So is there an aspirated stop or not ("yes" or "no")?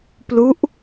no